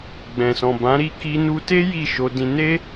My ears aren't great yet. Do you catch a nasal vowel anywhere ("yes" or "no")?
yes